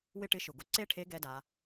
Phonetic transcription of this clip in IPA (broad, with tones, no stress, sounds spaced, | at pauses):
w ɪ˥ ʈ ɪ˧˥ ʃ ʊ˩ ɡ ʊ˧ ǀ e˥ ʈʰ e˧˥ ɡ ɛ˧˥ d a˩˧